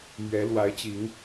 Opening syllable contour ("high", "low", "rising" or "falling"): rising